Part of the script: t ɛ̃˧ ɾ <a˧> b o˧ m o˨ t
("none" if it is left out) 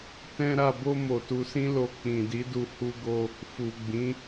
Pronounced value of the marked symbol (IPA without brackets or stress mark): a˨